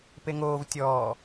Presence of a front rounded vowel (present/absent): absent